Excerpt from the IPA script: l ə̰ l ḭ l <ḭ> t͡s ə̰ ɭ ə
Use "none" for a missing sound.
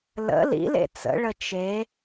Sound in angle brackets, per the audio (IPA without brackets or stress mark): ḛ